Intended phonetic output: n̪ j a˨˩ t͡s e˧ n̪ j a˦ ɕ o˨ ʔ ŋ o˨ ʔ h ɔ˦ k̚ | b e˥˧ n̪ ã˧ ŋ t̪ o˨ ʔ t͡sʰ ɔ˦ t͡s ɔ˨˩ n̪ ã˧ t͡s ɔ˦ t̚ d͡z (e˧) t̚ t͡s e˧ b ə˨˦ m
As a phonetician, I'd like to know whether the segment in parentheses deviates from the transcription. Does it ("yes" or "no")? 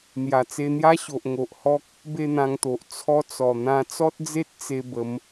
yes